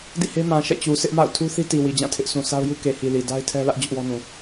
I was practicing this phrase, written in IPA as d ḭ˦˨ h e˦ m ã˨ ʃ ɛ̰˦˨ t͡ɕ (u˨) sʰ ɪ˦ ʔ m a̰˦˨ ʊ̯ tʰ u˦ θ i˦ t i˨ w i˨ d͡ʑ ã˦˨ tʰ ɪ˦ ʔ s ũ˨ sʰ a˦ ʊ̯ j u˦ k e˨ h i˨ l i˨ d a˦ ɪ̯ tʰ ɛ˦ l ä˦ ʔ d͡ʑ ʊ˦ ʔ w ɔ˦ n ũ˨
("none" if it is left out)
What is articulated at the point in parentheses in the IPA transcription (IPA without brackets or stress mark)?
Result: u˨